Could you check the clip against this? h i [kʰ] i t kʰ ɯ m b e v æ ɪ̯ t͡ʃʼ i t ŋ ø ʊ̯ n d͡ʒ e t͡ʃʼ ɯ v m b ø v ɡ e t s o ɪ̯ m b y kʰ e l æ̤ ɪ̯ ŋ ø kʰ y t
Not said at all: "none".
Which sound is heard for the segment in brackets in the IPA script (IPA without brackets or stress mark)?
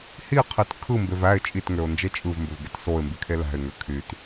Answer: qʰ